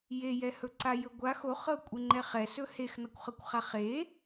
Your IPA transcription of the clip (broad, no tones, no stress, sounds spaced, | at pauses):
j e j ɛ h ɵ ǀ a j ɵ ɡʷ a x o χ ɤ kʷʼ e ŋ͡ǃ ɛ χ ɛ s ɵ h e x n ɒ kʷ χ ɤ kʷ χ a χ e